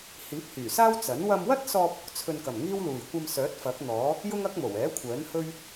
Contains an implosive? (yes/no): no